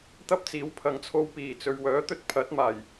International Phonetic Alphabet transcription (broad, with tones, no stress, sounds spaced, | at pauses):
t̪ ɐ˥ p̚ t͡s iː˨˥ w pʰ ɐ˨˧ ŋ t͡sʰ o˧ w p iː˨˩ t͡s ɵ˨ ɥ w œː˨˥ t̪ ɵ˧ t̚ pʰ ɐ˨˥ t̚ m aː˨˩ j